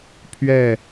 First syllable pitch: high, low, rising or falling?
falling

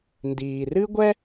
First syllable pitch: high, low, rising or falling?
low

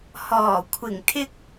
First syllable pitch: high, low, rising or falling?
low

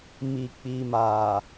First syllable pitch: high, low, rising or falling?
low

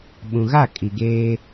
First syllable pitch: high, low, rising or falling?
low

